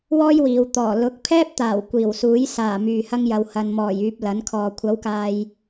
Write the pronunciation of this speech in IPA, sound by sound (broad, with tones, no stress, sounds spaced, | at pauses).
w ɔː˥ j w iː˨ w t̪ ɔː˨˩ l ʊ˨˥ k̚ pʰ ɛː˥ p̚ t̪ aː˨˩ w kʷ iː˨˩ w s uː˨˥ j s aː˨˩ m yː˨ h ɐ˥ ŋ j ɐ˨˧ w h ɐ˨ n m ɔː˨˩ j yː˨ p̚ l ɐ˨˥ n kʰ ɔː˨ kʷʰ ɐ˨˥ w k aː˨ j